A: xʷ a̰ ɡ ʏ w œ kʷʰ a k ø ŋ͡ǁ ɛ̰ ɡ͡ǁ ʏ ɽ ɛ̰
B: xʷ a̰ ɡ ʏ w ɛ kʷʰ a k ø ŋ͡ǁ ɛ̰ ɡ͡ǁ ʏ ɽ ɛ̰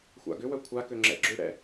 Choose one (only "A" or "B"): A